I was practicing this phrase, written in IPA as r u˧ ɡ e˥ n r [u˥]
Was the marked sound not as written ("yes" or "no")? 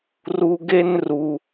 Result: yes